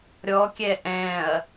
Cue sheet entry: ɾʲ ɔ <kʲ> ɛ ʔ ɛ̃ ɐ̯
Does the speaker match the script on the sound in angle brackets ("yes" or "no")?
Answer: yes